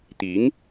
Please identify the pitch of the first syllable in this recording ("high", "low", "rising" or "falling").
rising